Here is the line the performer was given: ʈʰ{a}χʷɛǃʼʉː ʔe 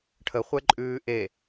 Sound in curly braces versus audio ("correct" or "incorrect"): incorrect